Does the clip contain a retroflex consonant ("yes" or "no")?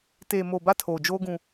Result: no